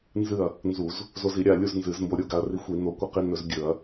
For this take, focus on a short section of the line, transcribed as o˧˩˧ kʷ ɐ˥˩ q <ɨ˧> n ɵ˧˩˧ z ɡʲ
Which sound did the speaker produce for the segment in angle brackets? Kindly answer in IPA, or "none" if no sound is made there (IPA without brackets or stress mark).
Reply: i˧